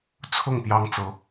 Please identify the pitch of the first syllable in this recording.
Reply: falling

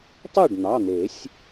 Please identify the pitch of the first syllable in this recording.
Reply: falling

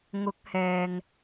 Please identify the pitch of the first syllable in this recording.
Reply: rising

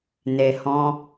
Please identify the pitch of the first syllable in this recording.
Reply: low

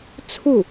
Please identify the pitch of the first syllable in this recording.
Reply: falling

